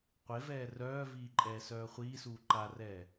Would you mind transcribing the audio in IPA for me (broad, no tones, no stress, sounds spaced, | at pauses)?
qʷ e v ɛː r œː v iː ǃʼ ɛː s œː χʷ iː s uː ǃ a r ɛː